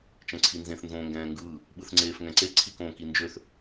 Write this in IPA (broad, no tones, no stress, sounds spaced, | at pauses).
t͡ʃ ɛ̃ ǀʰ i n z ẽ θ n z õː ŋ ɡ ɛ̃ː ŋ ɡ ɯː | ɓ ɯ θ ŋ͡ǀ eː f ŋ ɛ̃ ǀ e ǀʰ i k õː k i n d͡ʒ ø θ